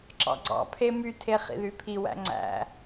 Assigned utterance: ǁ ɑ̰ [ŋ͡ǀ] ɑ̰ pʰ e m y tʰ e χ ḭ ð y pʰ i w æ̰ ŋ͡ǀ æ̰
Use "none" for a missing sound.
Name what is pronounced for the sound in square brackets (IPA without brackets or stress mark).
ɡ͡ǀ